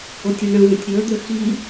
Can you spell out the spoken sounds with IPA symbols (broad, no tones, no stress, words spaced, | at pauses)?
otʲiɳə̃və̃tʲ ɾʲɤə̯d̪ə xi